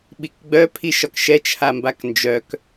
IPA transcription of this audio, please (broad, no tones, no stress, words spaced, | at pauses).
ɓikɡ͡bœ pʰiʃɒkʃɛ t͡ʃʰambaknd͡ʒœk